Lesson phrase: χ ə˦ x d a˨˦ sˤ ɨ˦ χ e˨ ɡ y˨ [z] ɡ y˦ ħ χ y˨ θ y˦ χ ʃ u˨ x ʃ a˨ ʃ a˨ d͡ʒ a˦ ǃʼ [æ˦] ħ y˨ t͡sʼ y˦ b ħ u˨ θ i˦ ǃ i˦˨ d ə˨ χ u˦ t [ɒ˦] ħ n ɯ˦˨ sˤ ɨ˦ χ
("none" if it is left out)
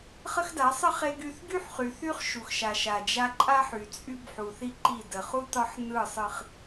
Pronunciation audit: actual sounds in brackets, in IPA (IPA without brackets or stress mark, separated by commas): θ, a˦, ɒ˦